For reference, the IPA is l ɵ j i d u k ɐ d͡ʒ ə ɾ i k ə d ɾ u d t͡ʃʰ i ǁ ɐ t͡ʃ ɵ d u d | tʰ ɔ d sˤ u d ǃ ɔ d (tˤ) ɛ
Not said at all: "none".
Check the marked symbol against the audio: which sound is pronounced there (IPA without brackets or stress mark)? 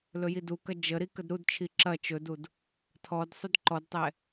tˤ